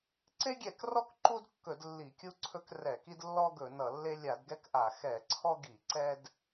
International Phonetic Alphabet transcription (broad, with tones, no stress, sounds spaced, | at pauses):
ǀ e˦ ɡʲ ɛ˧˩˧ k r ɔ˦ k ǃ u˦ d kː ɵ˧˩˧ d lː i˧˩˧ kʲ u˦ ǀʰ ɵ˦ k r ɛ˧˩˧ k i˦ d lː ɔ˦ ɡ ɵ˧˩˧ n ʌ˧˩˧ lː e˦ lʲ a˧˩˧ d ɡ ɛ˦ k ʔ a˧˩˧ x ɛ˧˩˧ ǀʰ ɔ˦ ɡ i˧˩˧ ǀ ɛ˦ d